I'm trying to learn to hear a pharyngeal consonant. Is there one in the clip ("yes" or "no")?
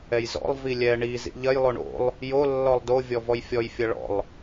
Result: no